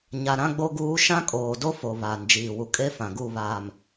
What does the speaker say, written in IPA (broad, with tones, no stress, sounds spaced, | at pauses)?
ɲ a˨ ɾ ã˦ ɡ͡b o˦ ɡ uː˦ ʃ ã˦ kʼ oː˨ d o˦ f o˨ β aː˨ n d͡ʒ iː˨ w u˨ kʼ e˦ f ã˨ ɡ u˦˨ β aː˨ m